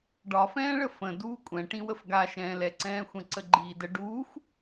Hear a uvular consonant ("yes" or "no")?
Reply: no